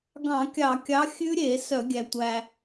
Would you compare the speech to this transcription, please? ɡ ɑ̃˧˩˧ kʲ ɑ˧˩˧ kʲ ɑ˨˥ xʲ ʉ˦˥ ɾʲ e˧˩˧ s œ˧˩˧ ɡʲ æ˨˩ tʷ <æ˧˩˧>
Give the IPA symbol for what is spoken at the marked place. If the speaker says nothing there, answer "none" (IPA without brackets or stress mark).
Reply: æ˨˩